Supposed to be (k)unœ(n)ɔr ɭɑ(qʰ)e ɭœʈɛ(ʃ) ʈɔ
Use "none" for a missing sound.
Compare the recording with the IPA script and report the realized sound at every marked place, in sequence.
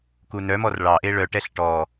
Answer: k, m, ʔ, ɬ

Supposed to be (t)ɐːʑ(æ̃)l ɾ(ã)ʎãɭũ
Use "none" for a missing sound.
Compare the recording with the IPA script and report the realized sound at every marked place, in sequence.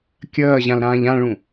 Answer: kʲ, ã, ãː

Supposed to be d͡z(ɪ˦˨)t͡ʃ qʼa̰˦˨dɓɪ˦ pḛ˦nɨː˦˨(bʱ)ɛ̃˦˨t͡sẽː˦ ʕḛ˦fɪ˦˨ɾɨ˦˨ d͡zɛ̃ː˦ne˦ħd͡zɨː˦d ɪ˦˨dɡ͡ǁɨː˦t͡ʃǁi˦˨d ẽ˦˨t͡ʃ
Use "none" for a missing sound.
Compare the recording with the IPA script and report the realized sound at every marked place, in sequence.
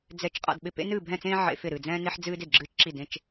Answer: ɛ˦˨, bʱ

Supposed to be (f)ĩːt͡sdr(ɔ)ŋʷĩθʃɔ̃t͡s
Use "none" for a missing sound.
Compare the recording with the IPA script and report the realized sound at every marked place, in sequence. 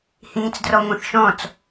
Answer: h, ɔ

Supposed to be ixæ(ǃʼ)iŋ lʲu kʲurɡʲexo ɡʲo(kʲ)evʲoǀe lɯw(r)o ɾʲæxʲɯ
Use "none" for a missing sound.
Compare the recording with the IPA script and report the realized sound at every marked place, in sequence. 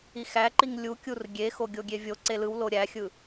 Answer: ǃ, ɡʲ, l

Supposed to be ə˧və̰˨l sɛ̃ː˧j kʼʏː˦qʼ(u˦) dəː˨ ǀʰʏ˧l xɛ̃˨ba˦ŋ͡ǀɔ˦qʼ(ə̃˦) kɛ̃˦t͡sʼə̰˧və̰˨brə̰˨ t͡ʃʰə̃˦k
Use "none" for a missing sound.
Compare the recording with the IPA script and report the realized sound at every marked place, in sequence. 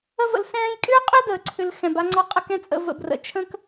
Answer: ʏ˦, ə˦

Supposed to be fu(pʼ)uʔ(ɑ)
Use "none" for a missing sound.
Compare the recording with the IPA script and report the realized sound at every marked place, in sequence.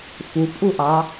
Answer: pʼ, ɑ

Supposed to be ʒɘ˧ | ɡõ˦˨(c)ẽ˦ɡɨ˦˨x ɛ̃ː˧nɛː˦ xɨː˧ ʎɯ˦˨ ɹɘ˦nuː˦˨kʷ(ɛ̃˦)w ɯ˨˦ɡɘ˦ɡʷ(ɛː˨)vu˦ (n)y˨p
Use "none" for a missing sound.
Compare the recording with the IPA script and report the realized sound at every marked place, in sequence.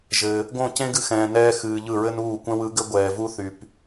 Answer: c, ɛ̃˦, ɛː˨, θ

